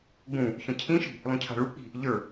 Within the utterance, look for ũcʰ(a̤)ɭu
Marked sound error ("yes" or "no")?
no